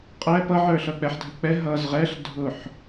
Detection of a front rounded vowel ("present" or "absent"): absent